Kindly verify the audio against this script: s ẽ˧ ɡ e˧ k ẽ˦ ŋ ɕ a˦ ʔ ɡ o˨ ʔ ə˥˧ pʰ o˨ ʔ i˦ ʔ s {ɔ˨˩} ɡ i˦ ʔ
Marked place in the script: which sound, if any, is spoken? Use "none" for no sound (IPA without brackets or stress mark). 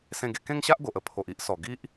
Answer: ɔ˨˩